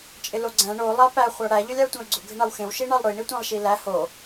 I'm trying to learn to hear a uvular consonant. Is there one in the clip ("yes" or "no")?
yes